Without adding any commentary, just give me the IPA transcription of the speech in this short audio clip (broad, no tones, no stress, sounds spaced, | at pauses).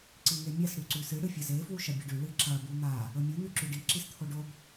ǀ i ŋ e mʲ a s ɽ ʉ ǀ ʉ s ɨ ɽ ɨ fʲ ɐ z e f w u ʃ ɐ bʲ ɐ ɖ ʉ ɭ ɨ ǁ ɐ b u n̪ a | ɵ mʲ u n̪ ʉ ǁ ʉ ɖ i ǁ i s t̪ʰ o ɖ o b